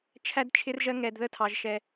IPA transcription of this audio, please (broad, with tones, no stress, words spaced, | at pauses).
t͡ʃʰæ˧d t͡ʃʰɪ˧rʒɜ˧ŋɛ˩d ðə˧tʰɑ˩ʒʃɛ˩